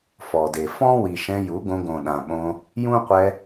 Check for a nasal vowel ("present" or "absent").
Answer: present